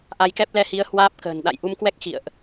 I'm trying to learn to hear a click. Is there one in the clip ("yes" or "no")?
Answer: no